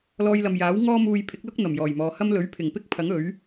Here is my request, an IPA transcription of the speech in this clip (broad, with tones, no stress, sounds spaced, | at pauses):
l ɔː˧ j l ɐ˨ m j aː˨˥ w ŋ ɔː˥ m uː˧ j pʰ ɪ˨˥ k̚ l ʊ˥ k̚ n̪ ɐ˨˩ m j ɔː˨˩ j m ɔː˨˧ h ɐ˥ m l ɵ˨˥ ɥ pʰ ɪ˨˩ ŋ p ɪ˥ k̚ pʰ ɐ˨˥ ŋ ɵ˨˥ ɥ